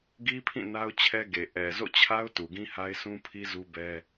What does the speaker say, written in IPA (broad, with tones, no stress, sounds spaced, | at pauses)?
ɡ i˦ pʰ ĩ˦˨ n a˦ ʊ̯ t͡ɕʰ ɛ˦ ɡ e˨ ʔ ɛ˨ z o̰˦˨ t͡ɕʰ a˦ ʊ̯ t u˨ ɡ ĩ˦ h a˦ ɪ̯ sʰ ũ˦ pʰ i˦ z u˦ b ɛ˦